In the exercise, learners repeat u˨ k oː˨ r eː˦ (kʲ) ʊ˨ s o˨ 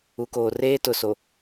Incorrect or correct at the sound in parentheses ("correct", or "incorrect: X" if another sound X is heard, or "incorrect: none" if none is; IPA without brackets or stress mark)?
incorrect: t